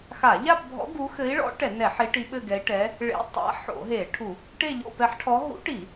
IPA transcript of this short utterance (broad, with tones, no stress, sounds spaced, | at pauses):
x a˧˩˧ ʎ a˥˧ p bʱ ɔ̰˧˥ ɡ u˧˥ x ɘ˧˥ i̯ ɭ ɔ̰˧˥ ʈ ɛ˧˩˧ n ɛ˧˩˧ ħ i˧˥ ʈ i˧˥ ɓ ɘ˥˧ ɡ ɛ˧˥ i̯ ʈ ɛ˧˥ | ɭ ḛ˧˥ tˤ a̰˧˥ ħ o̰˧˩˧ ɦ e˧˩˧ ʈʰ u˧˩˧ | ʈ e˥˧ ʎ o̰˥˧ p ɛ˧˥ ħ ʈʰ ɔ˧˥ ɦ ṵ˧˥ ʈ i˧˩˧